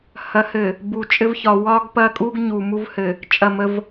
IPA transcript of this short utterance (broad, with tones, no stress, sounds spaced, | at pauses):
h ɐ˨˦ h ɘ˨ | b u˨ t͡ʃʼ ɘ˦ v ç ɒ˨ w ɒ˦ ɡ p ɐ˦ kʼ u˦ ɡ ɲ u˨ m u˦ v h ɘ˨ | t͡ʃʼ ɐ˦˨ m ə˦ v